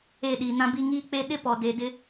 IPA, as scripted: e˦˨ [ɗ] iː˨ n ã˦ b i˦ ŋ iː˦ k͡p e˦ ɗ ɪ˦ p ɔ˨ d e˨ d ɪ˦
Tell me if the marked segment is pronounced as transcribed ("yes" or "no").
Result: yes